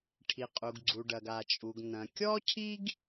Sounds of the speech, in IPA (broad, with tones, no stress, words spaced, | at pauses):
ʈʰi˩qʼu˩ɡ ɡ͡ǀu˩ɖɐ˩ɡ a˩t͡ʃʼu˩ɡ nɐ̃˩kʲɔ˥cʰi˥ɡ